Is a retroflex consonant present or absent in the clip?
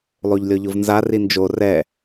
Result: absent